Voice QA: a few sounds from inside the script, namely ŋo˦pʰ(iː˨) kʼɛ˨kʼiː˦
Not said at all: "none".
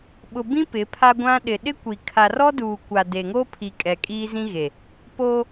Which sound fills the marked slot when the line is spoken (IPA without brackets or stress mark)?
i˨